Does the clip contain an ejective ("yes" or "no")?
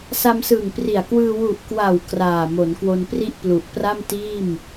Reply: no